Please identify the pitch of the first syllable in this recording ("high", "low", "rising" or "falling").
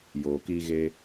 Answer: low